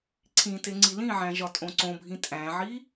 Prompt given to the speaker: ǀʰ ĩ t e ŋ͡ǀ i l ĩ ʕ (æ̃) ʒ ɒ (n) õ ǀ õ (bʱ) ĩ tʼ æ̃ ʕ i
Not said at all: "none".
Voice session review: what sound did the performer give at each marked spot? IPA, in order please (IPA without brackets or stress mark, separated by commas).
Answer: æ̃, tʼ, bʱ